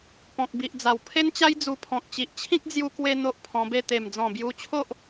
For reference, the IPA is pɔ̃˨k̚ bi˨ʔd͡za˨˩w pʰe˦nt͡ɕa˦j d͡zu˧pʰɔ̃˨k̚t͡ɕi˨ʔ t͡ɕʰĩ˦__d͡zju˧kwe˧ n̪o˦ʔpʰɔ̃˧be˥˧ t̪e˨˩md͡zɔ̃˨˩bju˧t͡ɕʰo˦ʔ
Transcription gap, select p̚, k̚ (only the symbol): k̚